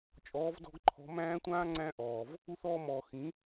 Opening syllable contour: rising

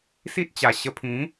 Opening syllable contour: high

